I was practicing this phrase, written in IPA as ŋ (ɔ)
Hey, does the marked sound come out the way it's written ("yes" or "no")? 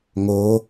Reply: no